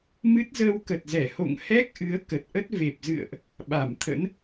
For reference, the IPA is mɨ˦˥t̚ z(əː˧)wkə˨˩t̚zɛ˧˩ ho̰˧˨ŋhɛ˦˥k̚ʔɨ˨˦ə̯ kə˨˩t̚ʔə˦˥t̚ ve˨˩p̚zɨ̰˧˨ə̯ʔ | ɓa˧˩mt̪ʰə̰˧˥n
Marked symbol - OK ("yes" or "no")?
yes